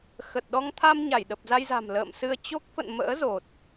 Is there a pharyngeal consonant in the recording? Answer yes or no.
no